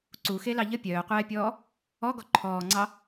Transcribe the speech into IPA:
ǀ u x e l ɑ ʎ ə pʲ œː qʷ ɛː pʲ ɔː | ɔ ɡ ɔ ǃʰ ɔː ŋ͡ǀ ɑ

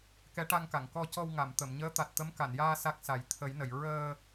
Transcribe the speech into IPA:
k ɛ˧˥ ʈ a˧ ŋ k a˨˩˨ ŋ k ɔ˧ c ɔ˧ w ŋ a˨˩˨ m t̪ ə˨˩˨ m ɲ əː˧˥ t̪ a˨˩ t̚ t̪ ə˧˥ m k a˨˩˨ n j aː˧ s a˦˥ k̚ s a˨˩˦ j t̪ʰ ə˨˩˦ j n ə˨˩˨ j ɹ əː˧

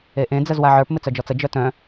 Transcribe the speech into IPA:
e ʔ ẽ d͡z ə z w a ʕ ə˞ p m ɪ t͡s œ d͡ʒ ɔ t͡s ə d͡ʒ œ t œ̃

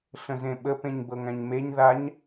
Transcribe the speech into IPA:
ɬ ə̃ z ẽ ɓ ə p ẽ ɲ b ɤ ŋ æ̃ ɲ m e ɲ ð a ɲ

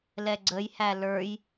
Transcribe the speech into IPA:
l ɛ ɡ͡ǀ ə j h æ l ə˞ j

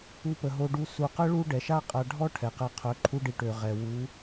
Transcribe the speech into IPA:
u˧ p ə˨ ɦ o˧ ɖ u˧ s u˨ q ə˦ ɭ u˦ ɖ ɛ˨ ʃ a˦ qʼ a˧ ɖʱ ɔ˦ ʈʰ ɛ˨ q ɛ˧ qʰ œ˨˦ ǃʰ u˦ ɖ i˧ ʈ ø˨ ʁ ɛ˨ w u˨˦

